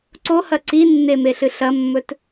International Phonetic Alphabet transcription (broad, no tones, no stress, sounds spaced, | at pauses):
ǀ o h ɐ ǀ i nː e m e ɬ ɨ ɬ ɐ mː ɵ t